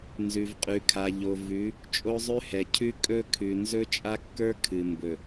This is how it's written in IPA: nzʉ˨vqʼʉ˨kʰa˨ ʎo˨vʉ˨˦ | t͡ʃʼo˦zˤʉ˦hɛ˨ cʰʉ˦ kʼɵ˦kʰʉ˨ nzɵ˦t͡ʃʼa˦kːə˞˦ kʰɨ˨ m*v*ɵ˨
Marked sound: incorrect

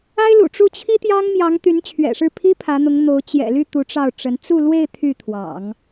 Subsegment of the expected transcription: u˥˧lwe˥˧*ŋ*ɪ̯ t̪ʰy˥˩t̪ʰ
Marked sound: incorrect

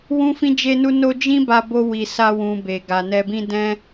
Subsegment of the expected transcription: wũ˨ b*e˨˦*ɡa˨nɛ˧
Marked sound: incorrect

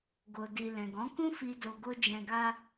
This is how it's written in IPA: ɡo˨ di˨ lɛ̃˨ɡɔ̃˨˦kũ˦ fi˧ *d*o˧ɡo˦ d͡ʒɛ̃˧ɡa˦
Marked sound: correct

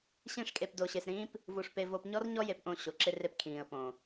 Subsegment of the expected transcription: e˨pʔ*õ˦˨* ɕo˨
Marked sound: correct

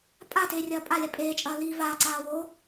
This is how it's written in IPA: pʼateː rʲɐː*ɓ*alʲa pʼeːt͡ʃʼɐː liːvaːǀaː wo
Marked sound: incorrect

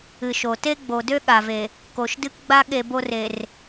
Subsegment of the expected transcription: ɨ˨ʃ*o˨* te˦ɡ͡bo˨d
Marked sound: correct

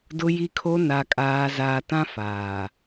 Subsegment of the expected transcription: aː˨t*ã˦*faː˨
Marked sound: correct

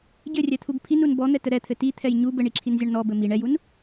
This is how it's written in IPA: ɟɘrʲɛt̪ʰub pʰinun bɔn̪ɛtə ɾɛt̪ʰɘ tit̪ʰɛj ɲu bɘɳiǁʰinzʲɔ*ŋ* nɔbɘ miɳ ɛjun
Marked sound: incorrect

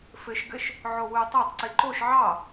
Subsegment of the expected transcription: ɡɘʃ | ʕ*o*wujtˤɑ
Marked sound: correct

